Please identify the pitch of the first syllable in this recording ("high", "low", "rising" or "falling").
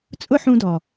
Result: high